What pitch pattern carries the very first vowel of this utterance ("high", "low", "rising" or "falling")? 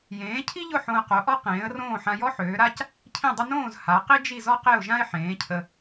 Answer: rising